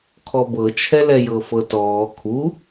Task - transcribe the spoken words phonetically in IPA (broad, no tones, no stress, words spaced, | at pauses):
kʰɔbɤt͡ʃʰɛlɛ jɤfɤtɔː kʰu